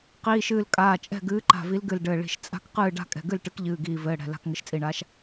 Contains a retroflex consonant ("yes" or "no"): yes